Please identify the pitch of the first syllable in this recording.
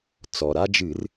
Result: low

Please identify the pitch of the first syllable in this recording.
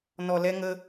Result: low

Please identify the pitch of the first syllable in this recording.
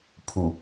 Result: low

